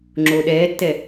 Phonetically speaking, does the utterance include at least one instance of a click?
yes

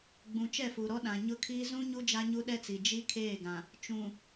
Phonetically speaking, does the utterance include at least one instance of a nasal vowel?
yes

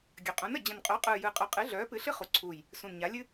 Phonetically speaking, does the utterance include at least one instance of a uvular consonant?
yes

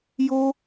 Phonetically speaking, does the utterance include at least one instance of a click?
no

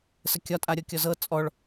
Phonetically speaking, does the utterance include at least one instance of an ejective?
yes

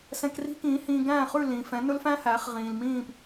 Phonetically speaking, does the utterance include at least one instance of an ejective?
no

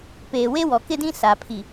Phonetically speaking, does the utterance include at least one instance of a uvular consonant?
no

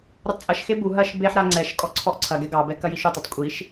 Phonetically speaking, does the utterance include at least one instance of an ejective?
yes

